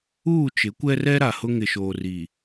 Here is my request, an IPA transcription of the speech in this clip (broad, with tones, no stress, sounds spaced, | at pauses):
uː˦˨ t͡ʃ ɪ˨˦ kʷ ɛ˦ r ɛ˦ ɾ a˨ h ʊ˦ ŋ ɪ˨ ʃ oː˨ r i˨